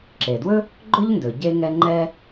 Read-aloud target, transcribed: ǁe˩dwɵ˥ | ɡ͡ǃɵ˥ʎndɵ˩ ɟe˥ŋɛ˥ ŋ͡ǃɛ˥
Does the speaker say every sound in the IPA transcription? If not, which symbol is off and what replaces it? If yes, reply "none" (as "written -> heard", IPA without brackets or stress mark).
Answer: none